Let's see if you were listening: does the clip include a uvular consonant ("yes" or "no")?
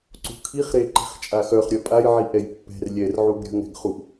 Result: yes